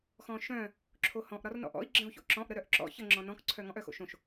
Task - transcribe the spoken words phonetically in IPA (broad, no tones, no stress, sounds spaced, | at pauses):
x ɔ̃ː ʃ œ̃ː | ǁʰ o h ɔ̃ ʔ ɾ ɒ r n ɔ̰ ʔ ɔ̰ i̯ ɡ͡ǁ ə̃ u̯ ç o̰ ǁ ɔ̃ ʔ ɾ ə ɾ œ ʔ ǁ ɔ̰ ç ə ŋ͡ǁ ɔ̃ n ɔ̃ k ǀʰ œ ŋ ɔ̃ ʔ œ x o̰ ʃ õ ʃ